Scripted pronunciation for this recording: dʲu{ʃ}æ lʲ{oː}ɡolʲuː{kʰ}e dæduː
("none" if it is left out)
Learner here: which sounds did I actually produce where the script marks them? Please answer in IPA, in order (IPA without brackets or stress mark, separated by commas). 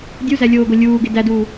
z, oː, ɡ